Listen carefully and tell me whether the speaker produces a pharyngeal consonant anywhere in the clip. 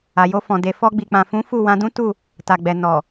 no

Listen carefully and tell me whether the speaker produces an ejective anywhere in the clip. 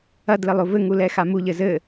no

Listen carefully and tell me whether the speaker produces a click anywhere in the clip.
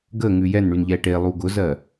no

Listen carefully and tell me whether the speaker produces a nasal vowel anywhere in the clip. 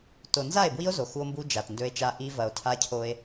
no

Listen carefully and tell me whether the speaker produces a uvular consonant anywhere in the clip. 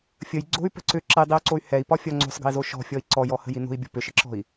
no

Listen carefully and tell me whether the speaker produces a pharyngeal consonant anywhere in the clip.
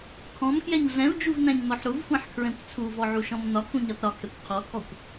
yes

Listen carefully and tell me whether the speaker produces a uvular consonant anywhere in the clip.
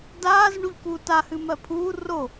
no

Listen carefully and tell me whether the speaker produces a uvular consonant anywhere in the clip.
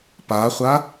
yes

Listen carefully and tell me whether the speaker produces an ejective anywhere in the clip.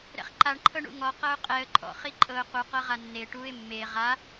yes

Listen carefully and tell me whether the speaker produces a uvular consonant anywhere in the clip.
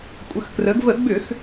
no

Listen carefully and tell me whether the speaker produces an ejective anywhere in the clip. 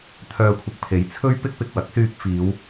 no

